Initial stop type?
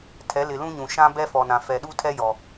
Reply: aspirated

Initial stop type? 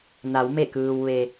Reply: plain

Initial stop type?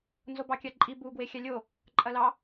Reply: plain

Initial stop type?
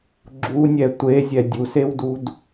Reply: click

